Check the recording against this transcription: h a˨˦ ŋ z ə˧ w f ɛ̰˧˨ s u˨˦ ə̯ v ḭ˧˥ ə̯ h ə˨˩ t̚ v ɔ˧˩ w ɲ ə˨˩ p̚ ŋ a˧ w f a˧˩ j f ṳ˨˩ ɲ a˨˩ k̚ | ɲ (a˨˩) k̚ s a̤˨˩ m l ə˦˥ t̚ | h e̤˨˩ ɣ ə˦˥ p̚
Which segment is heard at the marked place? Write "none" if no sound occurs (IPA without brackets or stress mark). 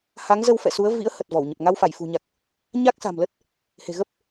a˦˥